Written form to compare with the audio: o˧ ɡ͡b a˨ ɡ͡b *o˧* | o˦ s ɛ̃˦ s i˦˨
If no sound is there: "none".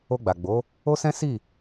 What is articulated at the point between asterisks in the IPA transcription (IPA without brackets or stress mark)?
o˨˦